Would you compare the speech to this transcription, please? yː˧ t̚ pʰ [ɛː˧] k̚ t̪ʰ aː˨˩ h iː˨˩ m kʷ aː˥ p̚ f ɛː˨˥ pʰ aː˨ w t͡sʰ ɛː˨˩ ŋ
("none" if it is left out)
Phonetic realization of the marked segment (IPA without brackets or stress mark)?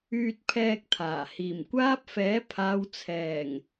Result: ɛː˧